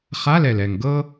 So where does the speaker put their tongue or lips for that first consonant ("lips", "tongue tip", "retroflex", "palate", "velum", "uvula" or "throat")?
uvula